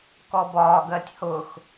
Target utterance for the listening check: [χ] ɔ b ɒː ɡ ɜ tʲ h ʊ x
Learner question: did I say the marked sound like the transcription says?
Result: no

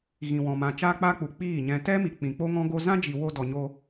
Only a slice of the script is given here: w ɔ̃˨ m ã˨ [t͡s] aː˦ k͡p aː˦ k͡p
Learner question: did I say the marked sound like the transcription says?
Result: no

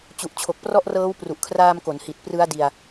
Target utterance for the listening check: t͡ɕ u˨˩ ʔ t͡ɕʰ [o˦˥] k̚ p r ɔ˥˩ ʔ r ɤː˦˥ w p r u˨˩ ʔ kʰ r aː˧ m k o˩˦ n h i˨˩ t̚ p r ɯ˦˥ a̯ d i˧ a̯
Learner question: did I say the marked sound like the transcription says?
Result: no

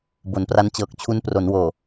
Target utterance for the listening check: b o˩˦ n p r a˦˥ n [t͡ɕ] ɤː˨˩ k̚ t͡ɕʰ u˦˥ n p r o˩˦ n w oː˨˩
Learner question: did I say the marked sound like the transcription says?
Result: yes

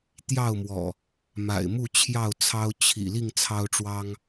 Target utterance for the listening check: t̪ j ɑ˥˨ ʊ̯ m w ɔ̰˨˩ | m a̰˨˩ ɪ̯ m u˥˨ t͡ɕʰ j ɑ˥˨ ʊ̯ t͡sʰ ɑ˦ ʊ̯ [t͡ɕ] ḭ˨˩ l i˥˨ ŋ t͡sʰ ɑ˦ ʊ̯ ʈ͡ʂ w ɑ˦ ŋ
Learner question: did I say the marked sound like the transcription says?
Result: no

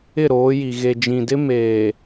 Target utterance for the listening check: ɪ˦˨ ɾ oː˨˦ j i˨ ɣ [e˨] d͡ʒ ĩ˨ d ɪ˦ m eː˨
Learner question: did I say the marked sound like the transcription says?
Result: yes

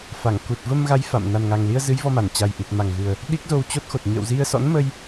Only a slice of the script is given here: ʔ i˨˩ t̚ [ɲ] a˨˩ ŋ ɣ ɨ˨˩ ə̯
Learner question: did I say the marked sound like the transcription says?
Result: no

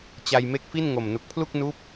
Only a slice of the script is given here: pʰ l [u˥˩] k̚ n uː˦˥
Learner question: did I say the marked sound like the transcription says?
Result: yes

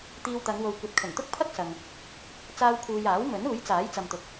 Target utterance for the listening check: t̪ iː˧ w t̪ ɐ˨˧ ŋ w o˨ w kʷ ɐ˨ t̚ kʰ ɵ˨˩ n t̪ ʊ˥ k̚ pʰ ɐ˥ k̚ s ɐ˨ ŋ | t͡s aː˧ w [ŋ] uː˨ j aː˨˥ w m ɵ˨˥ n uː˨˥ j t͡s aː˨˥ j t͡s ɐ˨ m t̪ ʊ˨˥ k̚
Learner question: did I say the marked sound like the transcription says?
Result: no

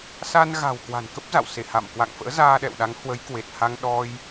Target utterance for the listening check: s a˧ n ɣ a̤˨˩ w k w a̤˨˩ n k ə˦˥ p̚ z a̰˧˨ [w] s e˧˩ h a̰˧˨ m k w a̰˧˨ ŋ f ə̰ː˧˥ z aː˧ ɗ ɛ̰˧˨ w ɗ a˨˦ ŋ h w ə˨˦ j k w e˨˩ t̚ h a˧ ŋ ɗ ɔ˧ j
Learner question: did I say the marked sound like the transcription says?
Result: yes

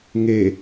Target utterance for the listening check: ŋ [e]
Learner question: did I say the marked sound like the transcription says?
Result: yes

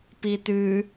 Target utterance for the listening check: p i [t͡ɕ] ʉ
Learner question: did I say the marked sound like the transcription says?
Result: no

